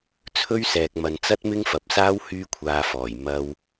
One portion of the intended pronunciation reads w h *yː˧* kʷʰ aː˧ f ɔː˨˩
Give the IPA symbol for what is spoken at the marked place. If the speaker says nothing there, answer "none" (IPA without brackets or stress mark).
yː˥